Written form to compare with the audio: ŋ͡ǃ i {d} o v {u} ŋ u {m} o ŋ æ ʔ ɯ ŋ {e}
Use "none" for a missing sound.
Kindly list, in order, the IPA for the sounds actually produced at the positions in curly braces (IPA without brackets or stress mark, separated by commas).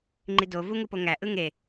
d, u, p, e